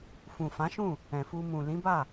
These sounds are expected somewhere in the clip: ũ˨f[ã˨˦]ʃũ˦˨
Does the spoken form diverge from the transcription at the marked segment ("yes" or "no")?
no